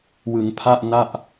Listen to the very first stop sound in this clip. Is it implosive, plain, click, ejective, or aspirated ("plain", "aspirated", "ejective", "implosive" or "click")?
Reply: aspirated